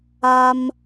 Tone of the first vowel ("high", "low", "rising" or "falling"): high